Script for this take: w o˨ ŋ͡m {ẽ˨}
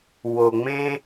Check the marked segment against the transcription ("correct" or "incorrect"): incorrect